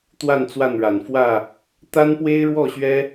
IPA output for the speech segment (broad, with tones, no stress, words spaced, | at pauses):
t̪wa˥˨nt͡swa˥˨nɻa˨˩n fwä˥˨ | t̪a˦npwe˦ɪ̯ɻwɔ˥˨ɕɥɛ˦